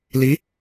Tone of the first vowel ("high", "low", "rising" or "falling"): rising